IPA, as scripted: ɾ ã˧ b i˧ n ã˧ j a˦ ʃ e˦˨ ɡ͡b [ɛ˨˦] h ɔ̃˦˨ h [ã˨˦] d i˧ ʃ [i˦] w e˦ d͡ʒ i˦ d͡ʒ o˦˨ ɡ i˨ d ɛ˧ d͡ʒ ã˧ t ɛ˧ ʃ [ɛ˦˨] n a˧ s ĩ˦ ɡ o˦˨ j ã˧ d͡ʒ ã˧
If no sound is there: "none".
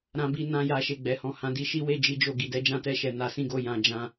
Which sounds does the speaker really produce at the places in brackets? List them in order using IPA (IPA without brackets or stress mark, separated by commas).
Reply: ɛ˨˦, ã˨˦, i˦, ɛ˧